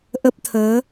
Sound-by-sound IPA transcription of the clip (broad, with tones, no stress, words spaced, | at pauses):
ʔə˦˥p̚t̪ʰəː˨˦